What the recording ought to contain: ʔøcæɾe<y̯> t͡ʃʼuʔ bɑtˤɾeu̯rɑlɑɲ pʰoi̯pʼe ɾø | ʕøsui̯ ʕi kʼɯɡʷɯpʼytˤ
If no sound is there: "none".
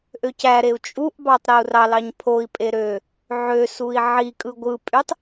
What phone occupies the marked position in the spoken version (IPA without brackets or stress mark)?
u̯